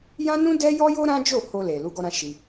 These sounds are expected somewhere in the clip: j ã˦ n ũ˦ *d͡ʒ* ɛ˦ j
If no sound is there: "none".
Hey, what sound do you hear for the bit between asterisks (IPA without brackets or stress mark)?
d